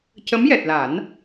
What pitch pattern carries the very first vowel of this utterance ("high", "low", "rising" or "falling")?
rising